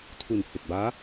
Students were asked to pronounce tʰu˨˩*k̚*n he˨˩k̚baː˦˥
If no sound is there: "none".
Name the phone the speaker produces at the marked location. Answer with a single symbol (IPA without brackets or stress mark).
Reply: none